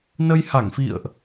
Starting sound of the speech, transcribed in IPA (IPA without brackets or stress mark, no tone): n